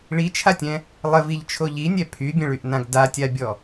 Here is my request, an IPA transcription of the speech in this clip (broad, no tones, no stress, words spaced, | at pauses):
ɭit͡ʃʰatʲɛ̃ | lˠəviʎt͡ʃʰo ʎinʲɛ pʰybʲə̃ɭyʔnãɡ datʲabʲɔ